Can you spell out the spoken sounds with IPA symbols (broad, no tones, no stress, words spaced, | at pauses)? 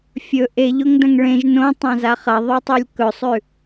fʲɵ ʔeʎoŋdɐ̃ŋ ɭẽʒ nõtˤãza χɐðˤotˤulʲ kɵsˤʉ